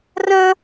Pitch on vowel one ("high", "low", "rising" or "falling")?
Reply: high